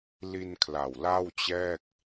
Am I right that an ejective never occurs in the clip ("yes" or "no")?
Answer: yes